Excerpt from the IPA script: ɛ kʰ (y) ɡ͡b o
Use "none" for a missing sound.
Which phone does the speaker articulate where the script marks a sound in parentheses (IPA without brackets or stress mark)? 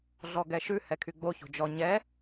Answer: y